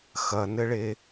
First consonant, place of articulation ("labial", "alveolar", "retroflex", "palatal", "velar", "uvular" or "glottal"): velar